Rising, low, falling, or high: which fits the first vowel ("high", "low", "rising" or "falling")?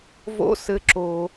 high